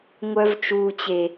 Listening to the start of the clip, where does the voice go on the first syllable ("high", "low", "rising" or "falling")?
high